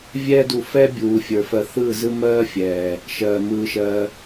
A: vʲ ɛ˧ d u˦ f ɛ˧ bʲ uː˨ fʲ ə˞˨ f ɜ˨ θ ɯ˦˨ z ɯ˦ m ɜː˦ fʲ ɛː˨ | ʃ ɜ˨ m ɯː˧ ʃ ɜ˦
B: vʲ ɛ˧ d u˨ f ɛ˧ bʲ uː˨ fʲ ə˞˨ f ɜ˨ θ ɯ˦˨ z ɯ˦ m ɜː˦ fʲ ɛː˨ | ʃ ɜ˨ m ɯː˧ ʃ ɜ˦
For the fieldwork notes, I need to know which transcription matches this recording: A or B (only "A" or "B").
B